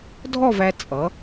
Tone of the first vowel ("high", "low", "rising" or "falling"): falling